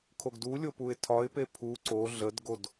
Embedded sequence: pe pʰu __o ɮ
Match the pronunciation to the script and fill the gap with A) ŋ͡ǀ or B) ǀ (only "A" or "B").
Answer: B